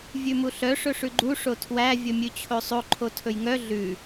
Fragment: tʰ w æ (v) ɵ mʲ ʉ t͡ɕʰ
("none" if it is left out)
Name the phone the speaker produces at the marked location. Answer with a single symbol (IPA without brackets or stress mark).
vʲ